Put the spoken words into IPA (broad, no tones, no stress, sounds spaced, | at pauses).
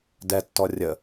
d ɛ tː ɔ rʲ ə